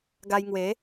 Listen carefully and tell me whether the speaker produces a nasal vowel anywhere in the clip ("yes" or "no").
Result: no